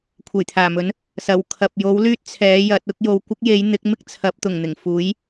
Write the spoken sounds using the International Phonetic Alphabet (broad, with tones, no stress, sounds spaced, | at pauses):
kʷʰ e˨˩ j t̪ʰ aː˨˩ m ɵ˨˥ n | s ɐ˨˩ w kʰ ɐ˨ p̚ j o˨˥ w l yː˥ t̚ t͡sʰ ɛː˨˥ j ɐ˨˥ t̚ ʊ˥ k̚ j o˨ w kʷ ɐ˥ k̚ j e˨˥ j n̪ ɪ˨˥ k̚ m ɪ˥ k̚ t͡sʰ ɐ˨˥ p̚ t̪ ʊ˨˩ ŋ n̪ ɪ˨˩ ŋ f uː˨˥ j